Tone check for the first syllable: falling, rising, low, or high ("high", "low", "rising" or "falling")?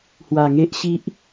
low